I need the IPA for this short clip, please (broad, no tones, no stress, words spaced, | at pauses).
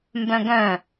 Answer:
mbœ̃ɡœ̃